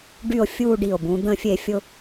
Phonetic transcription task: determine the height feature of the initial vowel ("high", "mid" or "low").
high